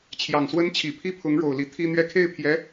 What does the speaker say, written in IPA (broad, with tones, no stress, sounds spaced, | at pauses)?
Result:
t͡ɕʰ j ɑ˨˩ ŋ s w ə˥ n t͡ɕʰ i˨˩ pʰ i˥˩ pʰ ʊ˧˥ ŋ ɻ o˨˩ ʊ̯ l i˧˥ t̪ʰ i˥ n̪ ɥ ɛ˥˧ kʰ e˥˩ ɪ̯ pʰ j ɛ˧˥